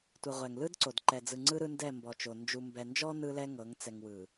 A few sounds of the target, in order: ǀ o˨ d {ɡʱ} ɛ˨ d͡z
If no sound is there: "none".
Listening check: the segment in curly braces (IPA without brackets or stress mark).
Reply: ǃ